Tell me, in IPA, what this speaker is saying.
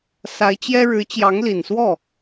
s a˧˥ ɪ̯ t͡ɕ j ɛ˥ ɻ ɻ̩˧˥ t͡ɕ j ɑ˧˥ ŋ l i˨˩ n s w ɔ˥˩

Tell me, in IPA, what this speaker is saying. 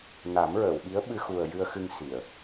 n a˨˩˦ m ɹ əː˨˩˨ w ɓ i˧˥ ə̯ ɓ ɨ˧ x u˨˩ ə̯ j ɨ˧ ə̯ x ɨ˧ ŋ s i˨˩˨ ə̯

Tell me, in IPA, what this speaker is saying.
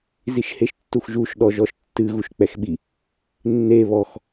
z i ʃ h e ʃ tː u x ʒ u ʃ ɗ ɔ ʒ ɔ ʃ tː ɨ ɣ u ʃ k͡p ɛ x ɓ i | nː e β ɔ x

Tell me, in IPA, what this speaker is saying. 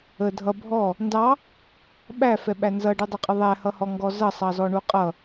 ə dʱ ʌ bʱ ɔ | n d ɑ | ɓ æ f ɛ ɓ æ n z ʌ ɖ u dˤ ə qʼ ə ðˤ æ h ʌ h ɔ ŋ ɡ ɔ z ʌ sˤ ɑ z ɔ ɳ u qʼ ʌ

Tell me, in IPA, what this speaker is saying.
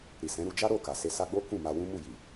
ɾ i˨ s ɛ̃˨˦ ɾ u˧ d͡ʒ a˦ ɾ o˦˨ k a˨ s e˧ s a˧ ɡ͡b o˦ k ũ˦˨ m a˧ w ũ˦ m u˦˨ j i˨

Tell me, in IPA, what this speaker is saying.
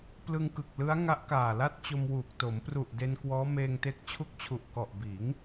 p l ɯ˧ ŋ k ɯ˨˩ k̚ l ɯ˦˥ a̯ ŋ a˦˥ ʔ k aː˨˩ l a˥˩ t̚ t͡ɕ o˧ m w uː˨˩ k̚ t o˩˦ m p r u˨˩ ʔ d e˧ n k w ɔː˦˥ m eː˧ ŋ t e˦˥ k̚ t͡ɕʰ u˦˥ k̚ t͡ɕʰ u˨˩ ʔ k ɔ˨˩ ʔ b iː˩˦ ŋ

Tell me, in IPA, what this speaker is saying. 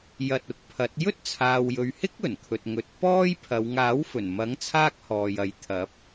j ɐ˧ t̚ ʊ˨ k̚ pʰ ɐ˨˥ t̚ j ɵ˥ t̚ t͡sʰ aː˨ w j ɵ˨ ɥ h ɪ˥ k̚ ɵ˨˩ n kʰ ɵ˨ t̚ ŋ ɵ˨˥ t̚ p ɔː˥ j pʰ ɐ˨˧ w ŋ aː˨˥ w f ɵ˨˩ n m ɐ˨˥ ŋ t͡sʰ aː˥ k̚ h ɔː˨ j ɐ˨˥ j t̪ʰ ɐ˨˥ p̚

